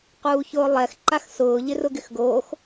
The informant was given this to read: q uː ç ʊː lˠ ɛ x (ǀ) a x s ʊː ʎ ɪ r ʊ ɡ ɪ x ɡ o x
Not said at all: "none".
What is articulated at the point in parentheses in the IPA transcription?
ǃ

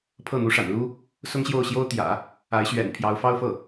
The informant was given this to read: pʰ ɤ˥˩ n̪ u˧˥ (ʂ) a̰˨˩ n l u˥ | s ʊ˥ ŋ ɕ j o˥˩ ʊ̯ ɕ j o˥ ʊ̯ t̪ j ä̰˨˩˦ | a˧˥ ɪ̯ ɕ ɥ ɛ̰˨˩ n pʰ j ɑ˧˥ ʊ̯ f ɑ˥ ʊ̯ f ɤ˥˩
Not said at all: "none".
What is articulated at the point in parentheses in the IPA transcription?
ʂ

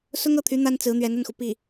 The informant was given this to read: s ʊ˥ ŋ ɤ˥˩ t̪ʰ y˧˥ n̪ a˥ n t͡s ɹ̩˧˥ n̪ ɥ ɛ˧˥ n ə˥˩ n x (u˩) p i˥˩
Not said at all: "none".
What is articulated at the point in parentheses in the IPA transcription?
u˩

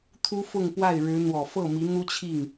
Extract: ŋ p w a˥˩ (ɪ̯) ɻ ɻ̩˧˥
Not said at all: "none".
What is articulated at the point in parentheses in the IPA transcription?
ɪ̯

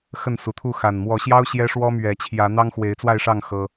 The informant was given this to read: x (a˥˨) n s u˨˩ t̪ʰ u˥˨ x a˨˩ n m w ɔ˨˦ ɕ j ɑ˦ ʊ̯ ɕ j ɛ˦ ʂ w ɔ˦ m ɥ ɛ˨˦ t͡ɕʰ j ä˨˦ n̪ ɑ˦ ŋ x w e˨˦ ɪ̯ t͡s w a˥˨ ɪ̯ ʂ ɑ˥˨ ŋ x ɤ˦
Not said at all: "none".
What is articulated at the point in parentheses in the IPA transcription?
ə˥˨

